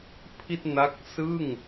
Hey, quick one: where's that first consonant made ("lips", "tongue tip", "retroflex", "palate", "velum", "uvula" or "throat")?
lips